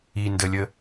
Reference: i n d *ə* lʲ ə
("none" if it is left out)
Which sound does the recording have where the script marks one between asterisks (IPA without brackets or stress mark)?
ə